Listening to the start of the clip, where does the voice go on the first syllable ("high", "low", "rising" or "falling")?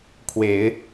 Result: low